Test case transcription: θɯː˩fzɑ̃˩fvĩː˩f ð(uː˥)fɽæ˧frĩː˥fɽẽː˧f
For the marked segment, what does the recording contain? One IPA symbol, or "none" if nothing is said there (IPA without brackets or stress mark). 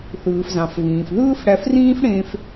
ɯː˥